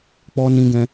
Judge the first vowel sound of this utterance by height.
mid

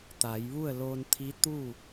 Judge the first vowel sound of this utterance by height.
low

